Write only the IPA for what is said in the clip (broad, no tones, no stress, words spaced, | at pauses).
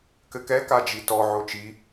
kɘkɛ kad͡ʒitɔ ʕot͡ʃi